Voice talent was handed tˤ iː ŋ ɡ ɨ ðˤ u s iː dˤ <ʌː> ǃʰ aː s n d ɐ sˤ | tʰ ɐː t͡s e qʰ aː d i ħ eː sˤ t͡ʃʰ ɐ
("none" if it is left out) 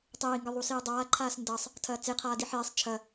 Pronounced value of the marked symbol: aː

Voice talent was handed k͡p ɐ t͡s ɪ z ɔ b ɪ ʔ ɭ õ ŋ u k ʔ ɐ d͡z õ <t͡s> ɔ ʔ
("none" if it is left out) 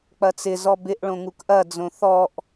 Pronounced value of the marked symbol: θ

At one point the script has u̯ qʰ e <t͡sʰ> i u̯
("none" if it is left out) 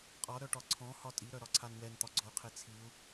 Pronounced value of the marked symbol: t͡sʰ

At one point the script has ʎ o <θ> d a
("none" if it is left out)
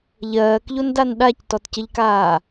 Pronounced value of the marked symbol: n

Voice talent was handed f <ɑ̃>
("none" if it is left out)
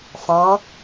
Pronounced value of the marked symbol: ɑ̃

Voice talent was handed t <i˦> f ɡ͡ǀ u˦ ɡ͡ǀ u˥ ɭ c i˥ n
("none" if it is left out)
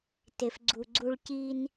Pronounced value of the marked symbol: e˦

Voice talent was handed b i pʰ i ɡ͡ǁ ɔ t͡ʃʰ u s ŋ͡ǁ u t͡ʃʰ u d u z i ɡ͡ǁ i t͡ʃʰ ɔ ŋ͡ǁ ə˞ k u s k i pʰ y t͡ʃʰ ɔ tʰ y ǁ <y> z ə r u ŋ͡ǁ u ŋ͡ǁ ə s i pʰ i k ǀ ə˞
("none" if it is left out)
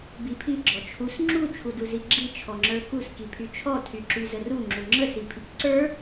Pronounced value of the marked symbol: y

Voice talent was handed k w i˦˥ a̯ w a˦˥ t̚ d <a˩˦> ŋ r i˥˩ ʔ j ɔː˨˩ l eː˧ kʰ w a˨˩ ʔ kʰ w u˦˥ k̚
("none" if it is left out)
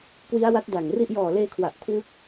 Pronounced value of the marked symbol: a˨˩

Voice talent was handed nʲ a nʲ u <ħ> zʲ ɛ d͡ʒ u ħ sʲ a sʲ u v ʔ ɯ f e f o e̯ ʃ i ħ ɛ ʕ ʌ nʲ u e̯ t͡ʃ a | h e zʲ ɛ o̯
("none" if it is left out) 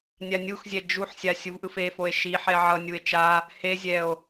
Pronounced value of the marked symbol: x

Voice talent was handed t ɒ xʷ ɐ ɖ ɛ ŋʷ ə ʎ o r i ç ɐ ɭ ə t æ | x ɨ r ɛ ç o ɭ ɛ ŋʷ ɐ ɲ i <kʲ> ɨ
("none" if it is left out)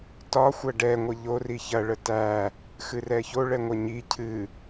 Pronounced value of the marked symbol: cʰ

